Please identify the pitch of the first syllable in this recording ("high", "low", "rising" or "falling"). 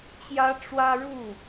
high